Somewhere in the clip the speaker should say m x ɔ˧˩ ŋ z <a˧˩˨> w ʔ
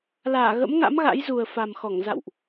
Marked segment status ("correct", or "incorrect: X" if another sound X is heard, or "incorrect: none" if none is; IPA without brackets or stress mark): incorrect: a̰˧˨